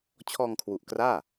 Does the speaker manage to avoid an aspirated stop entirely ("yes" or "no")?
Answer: no